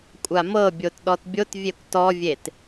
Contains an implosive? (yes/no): yes